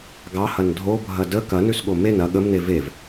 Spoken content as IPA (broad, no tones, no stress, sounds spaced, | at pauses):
ɡ ɑ h ɐ n dʱ o bʱ ɐ d ə k ɐ n ʉ s ɠ o m e n ɐ ɠ ə m n e v e v